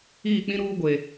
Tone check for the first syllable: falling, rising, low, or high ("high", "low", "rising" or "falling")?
falling